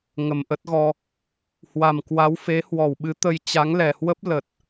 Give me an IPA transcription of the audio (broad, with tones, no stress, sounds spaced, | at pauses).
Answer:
ŋ ə˨˩ m ʔ ə˦˥ t̚ ɣ ɔ˧ | h w a˨˩ m k w a˨˦ w f e˨˦ h w ɔ˧˩ w ɓ ɨ˨˦ t̪ ə˧ j t͡ɕ a˨˦ ŋ l ɛ˨˩ h w ə˦˥ p̚ l ə˨˩ t̚